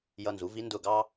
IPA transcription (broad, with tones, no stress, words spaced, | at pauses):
jʌ˧nzu˩˥vi˧˥ ndʊ˧˩ɡɑ˧